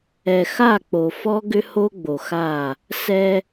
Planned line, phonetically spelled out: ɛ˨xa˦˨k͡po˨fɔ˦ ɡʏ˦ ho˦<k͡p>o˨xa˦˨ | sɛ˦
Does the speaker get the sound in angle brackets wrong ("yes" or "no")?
yes